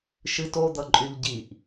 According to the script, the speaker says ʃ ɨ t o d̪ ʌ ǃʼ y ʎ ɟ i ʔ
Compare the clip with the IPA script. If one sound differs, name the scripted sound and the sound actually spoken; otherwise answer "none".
none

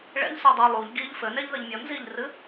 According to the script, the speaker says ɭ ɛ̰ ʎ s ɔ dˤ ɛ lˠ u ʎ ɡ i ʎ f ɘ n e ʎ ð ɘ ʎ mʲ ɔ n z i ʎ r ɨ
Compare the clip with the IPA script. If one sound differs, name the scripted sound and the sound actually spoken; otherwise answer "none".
none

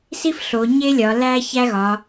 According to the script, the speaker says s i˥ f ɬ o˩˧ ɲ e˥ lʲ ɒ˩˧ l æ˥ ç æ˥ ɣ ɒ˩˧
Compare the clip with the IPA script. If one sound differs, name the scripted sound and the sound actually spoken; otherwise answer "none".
none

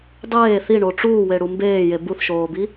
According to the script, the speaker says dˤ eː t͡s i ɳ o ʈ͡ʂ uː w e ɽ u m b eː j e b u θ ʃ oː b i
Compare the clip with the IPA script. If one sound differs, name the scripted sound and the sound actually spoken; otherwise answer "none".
t͡s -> θ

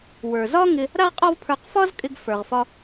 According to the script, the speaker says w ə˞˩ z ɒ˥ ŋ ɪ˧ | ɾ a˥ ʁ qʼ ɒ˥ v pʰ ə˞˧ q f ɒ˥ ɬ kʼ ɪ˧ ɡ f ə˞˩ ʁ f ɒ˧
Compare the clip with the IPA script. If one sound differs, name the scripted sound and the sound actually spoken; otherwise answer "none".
ɬ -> z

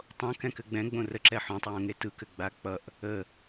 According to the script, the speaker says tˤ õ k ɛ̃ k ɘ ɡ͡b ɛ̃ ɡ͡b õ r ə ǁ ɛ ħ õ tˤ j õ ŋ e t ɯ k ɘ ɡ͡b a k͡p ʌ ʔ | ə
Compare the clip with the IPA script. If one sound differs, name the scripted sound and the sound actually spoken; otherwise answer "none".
none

